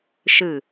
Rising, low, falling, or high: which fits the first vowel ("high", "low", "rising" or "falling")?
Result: falling